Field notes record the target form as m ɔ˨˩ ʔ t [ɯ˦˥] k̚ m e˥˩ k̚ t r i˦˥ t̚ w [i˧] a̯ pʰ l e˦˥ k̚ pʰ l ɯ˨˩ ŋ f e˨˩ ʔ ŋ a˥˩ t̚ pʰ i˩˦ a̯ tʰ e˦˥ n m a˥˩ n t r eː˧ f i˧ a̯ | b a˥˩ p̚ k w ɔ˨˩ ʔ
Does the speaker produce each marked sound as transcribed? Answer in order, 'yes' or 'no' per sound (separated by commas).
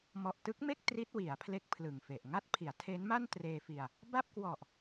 yes, no